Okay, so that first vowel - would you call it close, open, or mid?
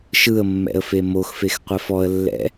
close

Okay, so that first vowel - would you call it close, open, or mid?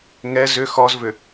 mid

